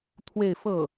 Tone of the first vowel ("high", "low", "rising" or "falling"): falling